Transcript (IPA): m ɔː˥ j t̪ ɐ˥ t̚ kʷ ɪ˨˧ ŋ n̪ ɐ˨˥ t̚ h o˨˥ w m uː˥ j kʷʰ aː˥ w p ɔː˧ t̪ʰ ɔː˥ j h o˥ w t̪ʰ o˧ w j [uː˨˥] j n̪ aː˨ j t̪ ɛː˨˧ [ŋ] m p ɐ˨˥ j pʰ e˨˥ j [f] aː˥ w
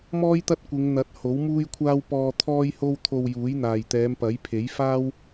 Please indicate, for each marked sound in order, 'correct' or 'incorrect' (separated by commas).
correct, incorrect, correct